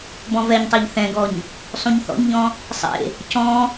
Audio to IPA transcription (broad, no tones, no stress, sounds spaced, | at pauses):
b ɔ̃ v ɛ ɲ tˤ ɛ ʎ θ ɛ̃ ɡ ɔ ɲ | sˤ ũ ɲ θ ɔ̰ ɲ ʎ ɔ̃ | sˤ ḛ | c ɔ̃